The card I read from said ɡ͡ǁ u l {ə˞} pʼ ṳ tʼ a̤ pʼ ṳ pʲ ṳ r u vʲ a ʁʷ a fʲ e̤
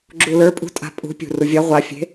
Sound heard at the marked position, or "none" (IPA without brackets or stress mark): ə˞